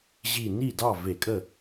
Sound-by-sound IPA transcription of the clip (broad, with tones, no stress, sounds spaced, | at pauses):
ʑ i˧˩ n i˥˩ d ɑ˥˩ v e˧˩˧ kʼ ə˥˩